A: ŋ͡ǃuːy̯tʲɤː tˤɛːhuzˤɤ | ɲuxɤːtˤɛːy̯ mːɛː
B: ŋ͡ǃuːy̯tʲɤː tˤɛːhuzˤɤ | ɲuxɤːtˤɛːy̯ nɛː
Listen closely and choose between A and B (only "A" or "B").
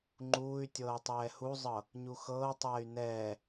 B